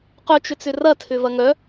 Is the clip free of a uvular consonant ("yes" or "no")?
no